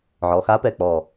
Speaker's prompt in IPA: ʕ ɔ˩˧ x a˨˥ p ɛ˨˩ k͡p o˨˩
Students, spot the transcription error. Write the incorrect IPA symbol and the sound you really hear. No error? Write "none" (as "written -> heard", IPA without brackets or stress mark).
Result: o˨˩ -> ɔ˨˩